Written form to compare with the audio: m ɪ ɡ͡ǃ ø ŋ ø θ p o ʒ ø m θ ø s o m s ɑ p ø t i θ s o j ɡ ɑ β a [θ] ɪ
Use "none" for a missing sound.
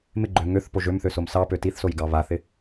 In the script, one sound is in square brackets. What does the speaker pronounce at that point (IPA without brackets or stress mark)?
θ